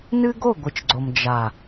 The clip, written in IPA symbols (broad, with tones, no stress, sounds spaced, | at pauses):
n ɨ˦ ɡ o˦˨ ɡʷ ɨ˨ t͡ʃ ɡ͡ǀ o˨ m d͡ʒ a˨